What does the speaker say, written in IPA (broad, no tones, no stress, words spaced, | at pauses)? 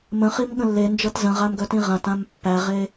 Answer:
mə̃χim ɠə̃lːend͡ʒɤt zə̃ʁam ɡœtĩʁãtãm pːæʁe